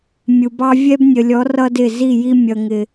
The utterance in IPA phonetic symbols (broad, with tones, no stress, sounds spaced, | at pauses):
mʲ u˨ b ɑ˦ vʲ ɛ˦ b nʲ ə˨ lʲ ɔ˨˦ r ʌ˦ d ɪ˦˨ z i˦˨ j i˦ mʲ ʌ˨ ŋ ɪ˨